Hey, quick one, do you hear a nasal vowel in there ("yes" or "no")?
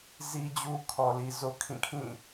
yes